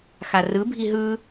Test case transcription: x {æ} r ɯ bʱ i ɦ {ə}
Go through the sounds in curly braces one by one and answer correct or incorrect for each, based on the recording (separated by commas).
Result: incorrect, incorrect